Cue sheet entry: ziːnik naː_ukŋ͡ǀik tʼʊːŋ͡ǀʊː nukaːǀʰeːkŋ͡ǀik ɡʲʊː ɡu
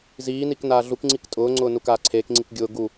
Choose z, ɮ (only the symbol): ɮ